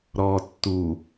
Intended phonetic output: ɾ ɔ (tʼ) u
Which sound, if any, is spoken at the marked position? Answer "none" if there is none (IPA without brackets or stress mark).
tː